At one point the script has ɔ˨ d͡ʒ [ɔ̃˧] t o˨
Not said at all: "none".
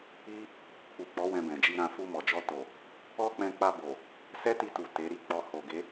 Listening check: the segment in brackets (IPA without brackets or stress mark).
ɔ˧